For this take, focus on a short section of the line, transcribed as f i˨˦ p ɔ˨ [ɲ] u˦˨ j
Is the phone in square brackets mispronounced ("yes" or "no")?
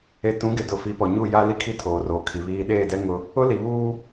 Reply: no